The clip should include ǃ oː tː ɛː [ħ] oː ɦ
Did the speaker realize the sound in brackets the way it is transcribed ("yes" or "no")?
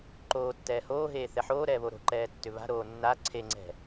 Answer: no